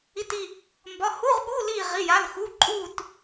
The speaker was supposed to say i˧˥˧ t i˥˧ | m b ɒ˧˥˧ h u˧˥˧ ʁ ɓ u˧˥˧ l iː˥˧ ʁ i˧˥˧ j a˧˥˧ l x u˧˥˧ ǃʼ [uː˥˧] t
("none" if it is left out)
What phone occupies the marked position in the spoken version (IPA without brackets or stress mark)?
uː˥˧